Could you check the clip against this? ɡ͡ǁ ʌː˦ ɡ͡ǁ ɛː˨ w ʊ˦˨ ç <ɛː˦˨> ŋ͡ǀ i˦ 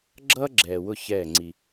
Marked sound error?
no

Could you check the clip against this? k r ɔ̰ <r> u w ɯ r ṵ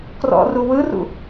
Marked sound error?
no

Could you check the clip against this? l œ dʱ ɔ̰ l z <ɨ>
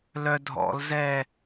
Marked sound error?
yes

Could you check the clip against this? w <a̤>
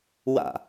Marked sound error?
yes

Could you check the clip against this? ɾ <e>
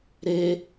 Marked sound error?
no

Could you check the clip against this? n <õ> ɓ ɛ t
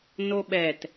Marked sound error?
yes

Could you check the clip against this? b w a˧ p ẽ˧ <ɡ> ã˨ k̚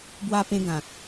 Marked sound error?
no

